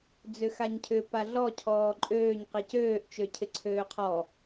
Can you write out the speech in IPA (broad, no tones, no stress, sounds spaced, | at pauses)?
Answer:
d͡z ʏ x a ɲ cʰ ʏ p a ɮ ɔ cʰ ɔː ǃʼ øː ɲ q i c øː ʔ t͡ʃ ø cʰ ɪ ǀʰ øː qʰ ɔ